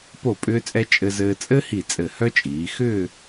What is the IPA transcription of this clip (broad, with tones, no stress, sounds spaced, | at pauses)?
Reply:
p o˧˩ pʼ ʏː˧ t͡sʼ ɛ˧ t͡ʃʼ ɘ˧ z ɘː˧ t͡sʼ ɘ˥ h i˧˩ t͡sʼ ɘ˧˩ h œ˥ t͡ʃʼ iː˩˧ x ʏː˥˧